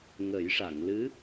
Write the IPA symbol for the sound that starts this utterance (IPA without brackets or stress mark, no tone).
ŋ